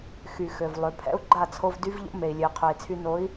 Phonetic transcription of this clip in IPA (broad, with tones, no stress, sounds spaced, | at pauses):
x y˨ x ø˨ v lˠ ø˨ pʰ ɛ̰˦ u̯ ɡ͡ǃ a˦˨ t͡sʰ o˧ v d y˦ v ʎ o̰˦ m e˨ i̯ lʲ ø˨ i̯ qʰ ø˨ i̯ t͡sʰ y˧ n o˨˦ i̯